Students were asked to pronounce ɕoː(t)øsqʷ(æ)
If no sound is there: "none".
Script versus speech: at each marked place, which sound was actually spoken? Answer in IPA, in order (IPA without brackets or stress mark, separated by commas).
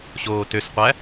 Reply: t, æ